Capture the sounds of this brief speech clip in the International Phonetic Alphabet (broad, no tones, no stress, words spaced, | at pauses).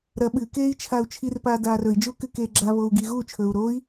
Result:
ɾɐ ɓɨkeːi̯ t͡ʃʰau̯t͡ʃʰirpaː daːrɵi̯d͡ʒuːkɨ keːɡ͡ǁaβou̯ ɡiːɣuːt͡ʃʰɵːu̯ ɾoi̯